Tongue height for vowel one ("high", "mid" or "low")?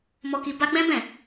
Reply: mid